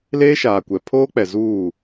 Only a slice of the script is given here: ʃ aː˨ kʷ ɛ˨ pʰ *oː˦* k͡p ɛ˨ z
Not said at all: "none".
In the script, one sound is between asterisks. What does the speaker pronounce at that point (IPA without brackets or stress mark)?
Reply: oː˦